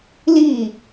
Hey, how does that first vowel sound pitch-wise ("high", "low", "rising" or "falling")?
falling